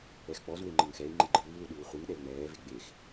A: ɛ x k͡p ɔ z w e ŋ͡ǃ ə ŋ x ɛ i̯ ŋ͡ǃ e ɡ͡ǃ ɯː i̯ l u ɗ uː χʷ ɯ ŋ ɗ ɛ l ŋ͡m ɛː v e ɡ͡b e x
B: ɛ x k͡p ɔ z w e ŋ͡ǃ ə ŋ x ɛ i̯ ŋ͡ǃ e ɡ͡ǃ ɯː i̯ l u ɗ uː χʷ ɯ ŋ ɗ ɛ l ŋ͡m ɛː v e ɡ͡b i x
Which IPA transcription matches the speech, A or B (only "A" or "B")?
A